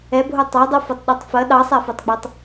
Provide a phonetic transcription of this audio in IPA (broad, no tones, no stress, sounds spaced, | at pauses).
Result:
ɛ bʱ o tˤ ɑ dˤ o f o tˤ ɗ ɑ tˤ f ɐ ɗ ɑ sˤ æ f o tˤ ɡ͡b ɑ tˤ